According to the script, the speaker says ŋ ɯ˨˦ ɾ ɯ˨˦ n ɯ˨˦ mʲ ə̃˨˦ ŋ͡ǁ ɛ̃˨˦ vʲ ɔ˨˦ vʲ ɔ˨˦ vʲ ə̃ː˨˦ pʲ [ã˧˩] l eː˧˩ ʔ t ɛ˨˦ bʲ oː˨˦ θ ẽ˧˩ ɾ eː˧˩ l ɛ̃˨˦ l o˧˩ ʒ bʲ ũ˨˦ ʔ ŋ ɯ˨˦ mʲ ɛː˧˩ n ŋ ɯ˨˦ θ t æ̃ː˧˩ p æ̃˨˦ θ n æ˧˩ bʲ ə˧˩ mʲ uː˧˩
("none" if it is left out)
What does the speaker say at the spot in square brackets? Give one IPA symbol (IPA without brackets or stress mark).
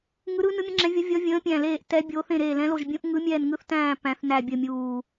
æ̃˧˩